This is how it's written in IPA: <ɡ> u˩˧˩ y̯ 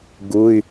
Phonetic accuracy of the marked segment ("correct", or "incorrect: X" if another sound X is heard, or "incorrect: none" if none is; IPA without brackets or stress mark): correct